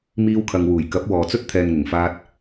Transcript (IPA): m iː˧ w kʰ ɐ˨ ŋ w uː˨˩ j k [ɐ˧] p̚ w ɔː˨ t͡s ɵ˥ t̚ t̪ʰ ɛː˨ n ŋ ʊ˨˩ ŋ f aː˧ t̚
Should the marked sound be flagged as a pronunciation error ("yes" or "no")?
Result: yes